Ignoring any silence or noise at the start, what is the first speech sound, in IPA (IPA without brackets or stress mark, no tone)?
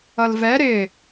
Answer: ʌ